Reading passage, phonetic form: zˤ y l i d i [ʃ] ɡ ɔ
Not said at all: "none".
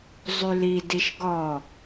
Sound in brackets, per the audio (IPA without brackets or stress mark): ʃ